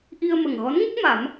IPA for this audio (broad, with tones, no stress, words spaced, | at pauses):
ʔi˧ə̯mə˨˩ŋɣɔ˧˥nŋə˦˥k̚ ma˨˩˦m